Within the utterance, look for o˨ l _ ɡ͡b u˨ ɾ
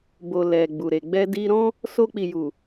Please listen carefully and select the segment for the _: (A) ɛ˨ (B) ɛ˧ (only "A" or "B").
A